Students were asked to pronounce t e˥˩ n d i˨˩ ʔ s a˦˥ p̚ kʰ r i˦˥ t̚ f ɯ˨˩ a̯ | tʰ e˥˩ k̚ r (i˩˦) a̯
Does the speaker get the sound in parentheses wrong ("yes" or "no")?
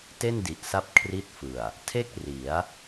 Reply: no